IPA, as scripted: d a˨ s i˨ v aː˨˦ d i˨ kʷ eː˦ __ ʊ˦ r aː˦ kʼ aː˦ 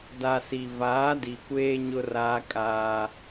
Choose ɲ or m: ɲ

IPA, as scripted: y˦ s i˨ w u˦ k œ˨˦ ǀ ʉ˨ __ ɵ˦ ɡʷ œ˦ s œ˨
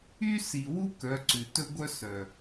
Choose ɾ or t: t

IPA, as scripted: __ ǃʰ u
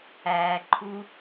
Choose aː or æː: æː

